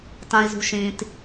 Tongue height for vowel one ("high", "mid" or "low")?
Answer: low